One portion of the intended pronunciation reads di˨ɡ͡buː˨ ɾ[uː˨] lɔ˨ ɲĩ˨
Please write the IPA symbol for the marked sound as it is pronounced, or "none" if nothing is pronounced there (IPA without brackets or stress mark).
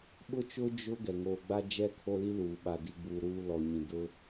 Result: uː˨